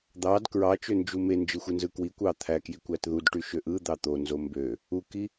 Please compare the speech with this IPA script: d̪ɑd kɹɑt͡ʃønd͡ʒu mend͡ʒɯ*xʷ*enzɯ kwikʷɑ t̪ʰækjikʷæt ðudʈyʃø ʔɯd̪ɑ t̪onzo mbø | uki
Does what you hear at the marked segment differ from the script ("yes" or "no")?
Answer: no